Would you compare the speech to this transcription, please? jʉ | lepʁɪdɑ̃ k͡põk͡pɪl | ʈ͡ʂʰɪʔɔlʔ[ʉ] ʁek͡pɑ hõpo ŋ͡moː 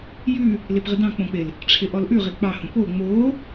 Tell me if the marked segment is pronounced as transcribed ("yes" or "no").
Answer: yes